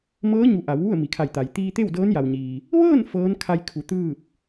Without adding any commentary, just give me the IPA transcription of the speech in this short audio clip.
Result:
m ɤː˧˥ ɲ u˩˧ ʔ a˩˧ w ʋ u˥˨ ə̯ m i˩ kʰ a˧˩ j t̪ a˩ j t̪ iː˧ t̪ e˥˨ w d ɤː˧˥ n j a˩ w ɲ iː˩ | ʋ ɤː˥˨ n f ɤː˧˥ n kʰ a˧ j kʰ u˩˧ t̪ ɯː˥˨ p̚

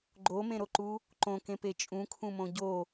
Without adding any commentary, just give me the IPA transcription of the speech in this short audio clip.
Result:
ɡ͡ǃ o m ẽ ɾ o ǃ u | ǃ õ k ẽ p e t͡ʃʼ ũ kʰ ũ m õ ɟ o

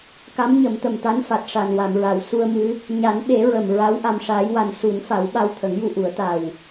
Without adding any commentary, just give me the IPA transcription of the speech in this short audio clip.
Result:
k a˧˥ m ɲ ə˨˩˦ m t̪ ə˨˩ m t̪ a˧˥ n f a˨˩ t̚ ʂ a˨˩ n w a˨˩˨ m ɹ a˨˩˨ w s u˧ ə̯ m ɨ˧˥ | ɲ a˨˩˦ n ɓ e˨˩˦ ɹ ə˨˩ m ɹ a˧˥ w ʔ a˧ m ʂ aː˧˥ j w a˧ n s u˨˩˦ n f a˨˩˦ w ɓ a˧ w t̪ʰ ə˨˩˦ ŋ j u˧ ʔ u˨˩˦ ə̯ t̪ a˨˩ w

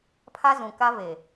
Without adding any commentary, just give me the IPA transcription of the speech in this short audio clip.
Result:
pʰ a˦ z ũ˨ k a˦ v e˨

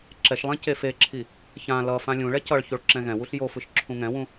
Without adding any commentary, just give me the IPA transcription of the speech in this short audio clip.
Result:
ǁ ɛ ʃ lˠ ɛ̃ c e f e ǁʰ i | ç ã l ʌ f ã lʲ ũ ɭ ɛ c ʌ ɭ ç o ɭ ǁ ɛ̃ ɣ ɛ̃ w u ɬ j o f ɯ ʃ ǁʰ ũ ŋ ɛ̃ w ũ

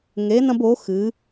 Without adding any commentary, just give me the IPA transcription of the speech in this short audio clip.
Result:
ŋ e˧˥ n ɐ̃˥ b o˧˥ x ɨ˧˥

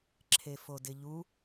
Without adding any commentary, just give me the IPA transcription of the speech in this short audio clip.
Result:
ǁʰ e f o d ɪ ʎ u

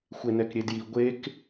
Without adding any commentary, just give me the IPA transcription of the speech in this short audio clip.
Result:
xʷ e n ɛ k ɾʲ e d j i ɡʷ e k

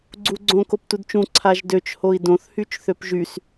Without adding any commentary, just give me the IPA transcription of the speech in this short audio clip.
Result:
ɡ͡ǀ u ɡ͡ǀ õ k o p t u d t͡ʃ ũ ǀʰ a ʒ d ø t͡ʃ h o i̯ d õ θ h y t͡ʃ θ ø p ʒ y s

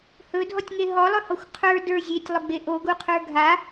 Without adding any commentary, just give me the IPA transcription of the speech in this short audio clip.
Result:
h ɵ dʱ ɔ tʲ ŋ e ɦ ɔ lˠ ɵ h ɔ xʷ qʰ ə˞ d ə˞ zʲ e tʲ lˠ ʊ ɡ͡b e ʔ o ɡ u qʰ ə˞ ɡʱ a

